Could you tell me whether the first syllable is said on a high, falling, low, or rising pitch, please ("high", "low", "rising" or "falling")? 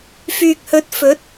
low